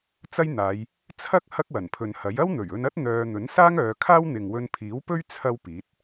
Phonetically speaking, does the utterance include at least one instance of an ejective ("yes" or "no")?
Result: no